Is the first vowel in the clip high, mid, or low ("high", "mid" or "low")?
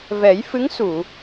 mid